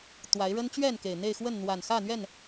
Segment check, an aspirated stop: absent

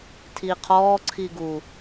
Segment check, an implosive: absent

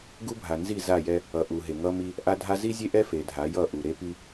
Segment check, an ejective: absent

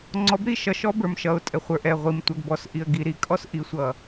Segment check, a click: present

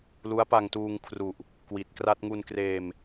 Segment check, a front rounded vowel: absent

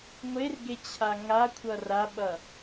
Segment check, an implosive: present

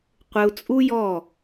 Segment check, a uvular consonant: present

